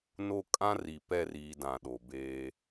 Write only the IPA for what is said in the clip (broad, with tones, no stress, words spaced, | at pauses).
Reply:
no˦kʼã˦ri˨ pɛ˦˨riː˨ dã˨ɗo˨beː˦